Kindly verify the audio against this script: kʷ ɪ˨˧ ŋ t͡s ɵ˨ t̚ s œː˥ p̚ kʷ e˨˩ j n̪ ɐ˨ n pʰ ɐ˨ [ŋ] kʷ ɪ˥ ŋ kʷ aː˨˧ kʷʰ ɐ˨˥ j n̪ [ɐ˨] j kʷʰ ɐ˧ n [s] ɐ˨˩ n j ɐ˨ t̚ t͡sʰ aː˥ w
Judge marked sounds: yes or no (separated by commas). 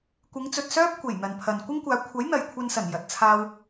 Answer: no, yes, yes